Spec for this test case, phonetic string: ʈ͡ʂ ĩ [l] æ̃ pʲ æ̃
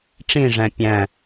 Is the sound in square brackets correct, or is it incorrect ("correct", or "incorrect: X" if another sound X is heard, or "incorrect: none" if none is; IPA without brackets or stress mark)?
incorrect: ʐ